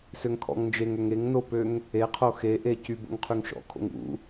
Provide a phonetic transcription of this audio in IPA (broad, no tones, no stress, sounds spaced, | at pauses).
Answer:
s ø ŋ kʰ ɔ̰ ŋ n d͡ʒ e ŋ ø ŋ e ŋ n o p ø ŋ | e qʰ o x e ʔ e c y b o̰ ŋ qʰ y ŋ ʃ ɔ̰ kʰ o̰ ŋ ṵ